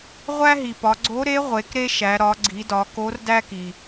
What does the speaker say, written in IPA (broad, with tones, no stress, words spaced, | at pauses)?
ʁʷæ˥ɦi˩pɒ˩˧ ɡ͡ǀo˧˥ɾe˧˥ ʁʷe˩˧kɾe˥ʃæ˩˧ ɾɒ˩˧ɡ͡ǀi˩˧dɒ˩˧ ko˧˥r dæ˥ki˩